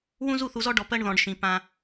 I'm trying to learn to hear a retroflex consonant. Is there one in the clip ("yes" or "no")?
yes